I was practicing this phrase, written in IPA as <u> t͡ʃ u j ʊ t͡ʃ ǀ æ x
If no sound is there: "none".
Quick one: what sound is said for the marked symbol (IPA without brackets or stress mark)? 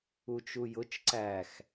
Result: u